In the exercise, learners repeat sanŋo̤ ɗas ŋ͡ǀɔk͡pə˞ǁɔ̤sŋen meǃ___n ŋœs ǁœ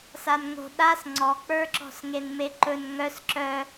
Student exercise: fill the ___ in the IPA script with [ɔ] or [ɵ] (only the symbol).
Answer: ɵ